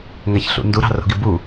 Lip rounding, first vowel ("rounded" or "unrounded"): unrounded